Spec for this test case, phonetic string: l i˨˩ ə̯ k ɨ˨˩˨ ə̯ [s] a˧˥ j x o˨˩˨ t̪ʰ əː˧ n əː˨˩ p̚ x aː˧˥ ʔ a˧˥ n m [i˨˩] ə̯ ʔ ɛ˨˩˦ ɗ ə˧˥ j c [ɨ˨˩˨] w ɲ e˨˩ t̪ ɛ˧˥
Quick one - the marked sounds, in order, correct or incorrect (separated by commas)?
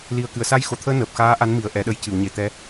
correct, correct, correct